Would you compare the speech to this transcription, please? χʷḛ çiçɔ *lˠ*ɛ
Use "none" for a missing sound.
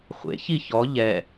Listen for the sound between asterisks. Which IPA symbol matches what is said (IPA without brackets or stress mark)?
ʎ